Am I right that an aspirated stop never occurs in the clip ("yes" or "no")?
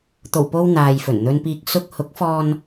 yes